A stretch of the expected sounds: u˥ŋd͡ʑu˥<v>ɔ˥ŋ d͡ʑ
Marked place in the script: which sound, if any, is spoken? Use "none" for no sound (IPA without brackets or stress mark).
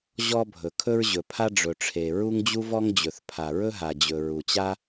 v